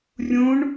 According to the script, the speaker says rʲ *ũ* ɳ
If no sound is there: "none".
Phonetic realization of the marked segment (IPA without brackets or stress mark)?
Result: ũ